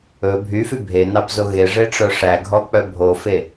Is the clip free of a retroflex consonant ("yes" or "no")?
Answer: no